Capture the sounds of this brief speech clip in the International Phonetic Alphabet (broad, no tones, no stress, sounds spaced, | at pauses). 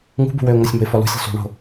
ŋ ṳ b ṳ w ø ʊ̯ ŋ o sʲ m o̤ ɪ̯ f ɔ l ṳ sʲ o̤ sˤ ṳ ɳ o̤